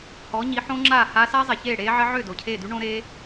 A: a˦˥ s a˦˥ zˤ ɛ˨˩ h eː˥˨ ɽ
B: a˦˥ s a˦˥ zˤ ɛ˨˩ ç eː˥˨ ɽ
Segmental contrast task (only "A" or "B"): B